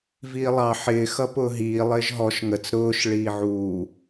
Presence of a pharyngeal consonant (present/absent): present